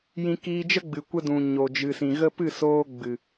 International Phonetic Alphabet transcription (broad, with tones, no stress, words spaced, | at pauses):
jĩ˧kiː˧d͡ʒə˦ɡ͡bɨ˨ kʷə˧dũ˨ ɲo˨d͡ʒɨ˨sĩ˨ɣə˦ pɨ˦˨soː˧ɡ͡bɨ˨